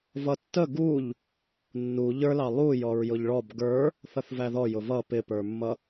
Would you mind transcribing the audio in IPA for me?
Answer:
v ʌ tː ə ɡ u ʎ | nː u ʎ ə˞ l ɑ lˠ u j ɔ ɹ j ʊ ʎ ɭ ɔ b ɡ ə˞ | θ ʌ θ v æ ð ɔ j ʊ v ʌ p ɪ p ə˞ mː ʌ

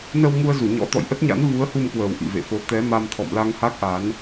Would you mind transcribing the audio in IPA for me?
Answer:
n ə˧ w ŋ u˧ ə̯ z u˧˩ ɲ ɔ̰˧˥ t̪ ɔ̰˧˨ j ʔ ə˦˥ t̚ ɲ a̰˧˥ n v u˨˦ ə̯ h u˧ m k w əː˨˩ w ʔ ḭ˧˨ v ḛ˧˨ f o˨˦ t̪ ɛ˨˦ m a˧ m t̪ʰ ɔ̰˧˨ m l a˧ ŋ h a˦˥ k̚ ʔ a˨˦ n

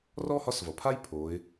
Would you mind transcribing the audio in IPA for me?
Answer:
r ɔː˥ h ɒ˧˥ s v ʌ˩ pʰ a˥ j pʰ oː˩˧ ɪ̯

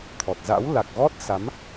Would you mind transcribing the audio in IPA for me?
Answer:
t̪ʰ ɔ˨˩ t̚ z a̰˧˥ w l a˨˩ k̚ ɣ ɔ˦˥ t̚ s a˨˦ m

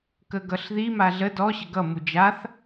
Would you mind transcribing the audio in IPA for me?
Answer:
k ə ɡ ʌ ɬ ð i m a ɮ ə d ɔ ɕ ə ɡ ʌ m u d͡ʒ a θ

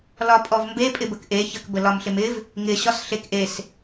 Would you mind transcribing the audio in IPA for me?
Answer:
l ɒ pʼ ɔ v m b e pʼ ɪ b ə k ʔ e ç ə k b ə l ɒ m ɬ ɪ m ɪ v | ŋ ɪ ɕ ɒ s ɬ e k ʔ e s

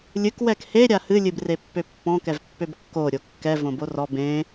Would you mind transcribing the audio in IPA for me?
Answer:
lʲ ɨ k w ɛ k h e ɾʲ a h ɨ lʲ ɨ b r e pː ø pː ɔ̃ k ɛ v pː ø b kː o ɾʲ o kː ɛ v õ b o r ɔ b ẽ

